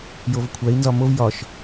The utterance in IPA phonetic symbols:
jovkʷʰæi̯ nzɒmov jɒʃ

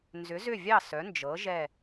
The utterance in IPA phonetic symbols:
nzʏ˩˧zʏ˧˩vʲɑ˧˩ sœ˩˧nd͡ʒɤ˩˧ ʒɛ˧˩

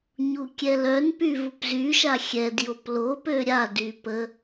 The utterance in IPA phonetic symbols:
ɲukʲɛlœnpy vupzyʃa xʲɛdjop lopø ɾʲady pə

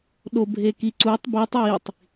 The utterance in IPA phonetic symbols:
ɗobʱekiǀutˤ bitˤ witˤ

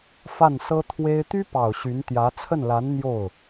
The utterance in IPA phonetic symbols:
fa˥˩nsɤ˥t̪ʰwe˥ɪ̯ t̪y˥pɑ˨˩ʊ̯ ɕy˧˥nt̪jä˧˥ t͡sʰə˥˩nla˧˥n n̪jo˥˩ʊ̯

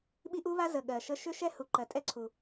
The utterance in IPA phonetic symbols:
ɓi˦˥ʔu˦˥βa˦˥ zə˨˩ ɠɜ˨˩ʃə˦˥ ʃʏ˦˥ ʃɛ˦˥hu˨˩ ǃɜ˨˩tʼɛ˦˥ǀʰu˨˩

